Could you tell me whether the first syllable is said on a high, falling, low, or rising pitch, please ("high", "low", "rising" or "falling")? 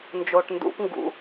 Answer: low